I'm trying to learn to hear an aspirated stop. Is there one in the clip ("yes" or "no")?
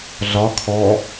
yes